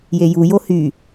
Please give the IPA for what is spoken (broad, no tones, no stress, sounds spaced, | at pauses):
j e j u j o h y